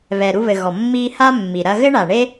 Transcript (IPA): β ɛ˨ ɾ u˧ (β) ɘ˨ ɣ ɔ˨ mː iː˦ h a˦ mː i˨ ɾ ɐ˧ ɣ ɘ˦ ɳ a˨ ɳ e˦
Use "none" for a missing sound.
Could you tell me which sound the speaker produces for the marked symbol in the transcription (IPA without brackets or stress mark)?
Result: β